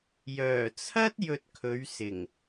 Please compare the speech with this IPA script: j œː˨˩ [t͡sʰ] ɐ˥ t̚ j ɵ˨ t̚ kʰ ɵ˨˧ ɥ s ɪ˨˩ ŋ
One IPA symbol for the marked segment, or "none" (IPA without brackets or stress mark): t͡sʰ